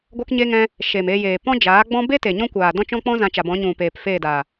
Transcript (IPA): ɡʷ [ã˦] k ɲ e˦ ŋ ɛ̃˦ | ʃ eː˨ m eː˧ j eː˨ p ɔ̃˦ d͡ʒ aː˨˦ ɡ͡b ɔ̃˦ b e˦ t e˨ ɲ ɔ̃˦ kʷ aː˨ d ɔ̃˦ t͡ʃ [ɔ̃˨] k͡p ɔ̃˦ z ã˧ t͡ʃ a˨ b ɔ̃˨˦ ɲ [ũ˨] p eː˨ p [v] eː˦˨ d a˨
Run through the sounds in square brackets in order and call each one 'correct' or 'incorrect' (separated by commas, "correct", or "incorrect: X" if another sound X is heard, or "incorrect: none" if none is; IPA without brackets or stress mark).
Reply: incorrect: a˦, incorrect: ɔ̃˦, correct, incorrect: f